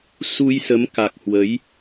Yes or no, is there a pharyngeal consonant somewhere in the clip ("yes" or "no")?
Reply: no